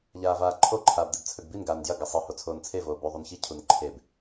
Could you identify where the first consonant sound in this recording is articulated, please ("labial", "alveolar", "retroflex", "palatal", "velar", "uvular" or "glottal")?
palatal